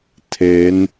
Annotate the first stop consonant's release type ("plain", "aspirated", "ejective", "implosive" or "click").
aspirated